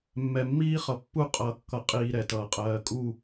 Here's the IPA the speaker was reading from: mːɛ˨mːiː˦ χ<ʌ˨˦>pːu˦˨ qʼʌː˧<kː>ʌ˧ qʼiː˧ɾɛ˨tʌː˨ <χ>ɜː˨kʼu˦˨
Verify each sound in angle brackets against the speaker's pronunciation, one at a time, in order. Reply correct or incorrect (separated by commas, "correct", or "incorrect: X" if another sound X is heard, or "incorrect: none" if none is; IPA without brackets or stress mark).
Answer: incorrect: ʌ˨, correct, incorrect: qʼ